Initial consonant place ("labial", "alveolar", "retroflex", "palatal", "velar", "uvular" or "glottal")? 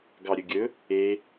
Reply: velar